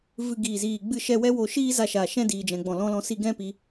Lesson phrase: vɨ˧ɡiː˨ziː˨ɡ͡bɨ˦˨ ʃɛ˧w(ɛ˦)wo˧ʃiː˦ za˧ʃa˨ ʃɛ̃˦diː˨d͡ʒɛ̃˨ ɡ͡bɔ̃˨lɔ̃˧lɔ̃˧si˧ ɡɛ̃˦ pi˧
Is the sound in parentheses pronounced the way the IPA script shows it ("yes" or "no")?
yes